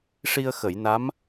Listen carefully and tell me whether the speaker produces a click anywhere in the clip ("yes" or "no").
no